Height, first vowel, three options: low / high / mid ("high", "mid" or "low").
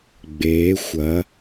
mid